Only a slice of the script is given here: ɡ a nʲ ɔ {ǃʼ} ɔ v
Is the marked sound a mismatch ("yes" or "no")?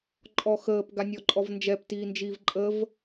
no